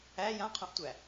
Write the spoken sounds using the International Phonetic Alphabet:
æ j ã qʰ õ ʔ tʷ æ

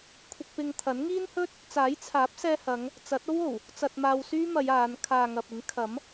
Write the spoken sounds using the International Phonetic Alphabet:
kʷʰ ɪ˧ k̚ p ɪ˧ ŋ t̪ʰ ɐ˨˥ n ŋ iː˥ n h ɵ˥ t̚ | t͡s aː˨˥ j t͡sʰ aː˨˥ p̚ s ɛː˧ h ɐ˨˧ ŋ | t͡s ɐ˨˥ t̚ o˥ w o˨˩ w | t͡s ɐ˧ t̚ m aː˧ w s yː˥ m ɐ˨˧ j aː˨˧ n kʰ aː˨ ŋ ɐ˨ p̚ ɪ˨˥ ŋ kʰ ɐ˨˥ m

